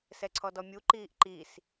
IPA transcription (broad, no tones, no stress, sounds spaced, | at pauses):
s ɛ ǀʰ ɔ d ɔ mʲ u ǃ iː ʔ ǃ i s